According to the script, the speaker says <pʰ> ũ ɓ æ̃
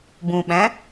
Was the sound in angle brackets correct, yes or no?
no